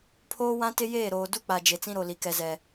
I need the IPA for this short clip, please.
pʰoː˦ wã˦tɪ˦ jeː˦˨ɾoː˨du˦k͡pa˨ d͡ʒe˨t͡sĩ˦ɾo˨li˨ kɛ˨zɛ˨

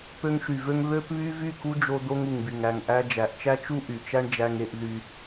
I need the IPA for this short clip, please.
pø˧ŋʃy˨vø˦ŋ βø˦pβy˦ vy˦˨ku˦d͡ʒo˧ d̪o˦ŋu˨ŋby˨ŋ æ˨ŋʔæ˧ d͡ʒæ˨ʔt͡ʃæ˦t͡ʃu˦ ʔy˨t͡ʃæ˦ɳ d͡ʒæ˦ŋe˦ʔ ðy˧

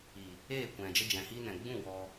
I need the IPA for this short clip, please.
i˨ | eː˦˨kʷɛ̃˨ d͡ʒə˦d͡ʒɛ̃˨ hiː˦nɛ̃˨ ɡ͡bũ˦˨ wɔ˦

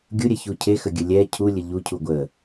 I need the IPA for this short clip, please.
ɡʲuɾʲɛçu cʰexəɡʲə lʲɛ cʰulʲə ʎucʰu ɡʷə

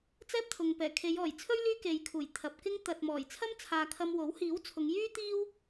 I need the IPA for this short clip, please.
t͡sɛː˥p̚t̪ʰʊ˨ŋ pɛː˨˩kʰe˨˧jɔː˨˩jt͡sʰɵ˥ɥ lyː˥ke˨jkʰuː˨˩j t̪ʰɐ˨p̚kɪ˥ŋ t̪ɐ˨t̚mɔː˨˩j t͡sʰɐ˥mt͡sʰaː˨ kʰɐ˧mwo˨˥w hiː˨˥wt͡sʰʊ˨˧ŋjyː˥t̪iː˥w

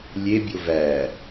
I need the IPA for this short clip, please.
lʲebʲo væ

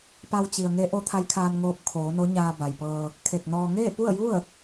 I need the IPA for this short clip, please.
pa˧wt͡ɕi˩ə̯ŋe˧˥ ʔo˧˥t̪ʰa˧˥jkʰaː˧nŋoː˧p̚ kʰoː˩˧no˧˥ɲaː˧ ba˩jpɤː˧ | kʰe˧˩k̚nɔː˧ ŋeː˥˨pu˥˨ə̯ju˥˨ə̯

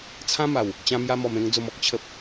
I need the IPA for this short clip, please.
t͡sʰã˦ma˨˩w | t͡ɕã˧mja˧mɔ˨˩m ẽ˧ŋ d͡zo˨˩mɔ˨k̚ t͡ɕʰə˨p̚

